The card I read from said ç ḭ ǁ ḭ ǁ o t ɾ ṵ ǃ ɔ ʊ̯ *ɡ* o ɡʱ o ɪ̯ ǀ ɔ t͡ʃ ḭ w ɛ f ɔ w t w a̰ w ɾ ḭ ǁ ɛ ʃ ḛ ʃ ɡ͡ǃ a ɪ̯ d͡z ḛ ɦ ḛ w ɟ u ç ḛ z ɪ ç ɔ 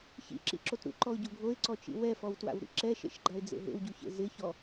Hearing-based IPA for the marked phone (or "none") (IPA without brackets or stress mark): ɟ